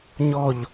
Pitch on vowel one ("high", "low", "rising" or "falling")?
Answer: falling